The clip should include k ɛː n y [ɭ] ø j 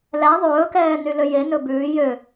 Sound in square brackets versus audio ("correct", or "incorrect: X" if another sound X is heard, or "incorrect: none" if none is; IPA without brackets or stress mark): incorrect: l